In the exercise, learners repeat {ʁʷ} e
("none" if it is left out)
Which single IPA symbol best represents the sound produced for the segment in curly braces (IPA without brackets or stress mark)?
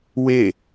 w